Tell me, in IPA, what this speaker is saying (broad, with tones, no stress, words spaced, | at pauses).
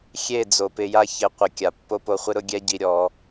xʲe˦˨d͡zo˨pɪ˧ja˦ çɪ˨˦qʷɪ˨ kʲa˨pːo˦po˧χʷɪ˦ ɾʊ˦ɡʲɛ˦ɟi˧ɾʲɔ˨˦